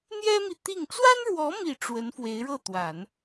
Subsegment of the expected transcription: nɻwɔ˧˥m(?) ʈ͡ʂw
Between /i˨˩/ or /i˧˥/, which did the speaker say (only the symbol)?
i˨˩